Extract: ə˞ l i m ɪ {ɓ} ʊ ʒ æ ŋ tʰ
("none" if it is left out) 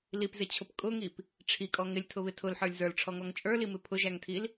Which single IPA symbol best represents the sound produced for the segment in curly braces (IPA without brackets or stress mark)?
pʰ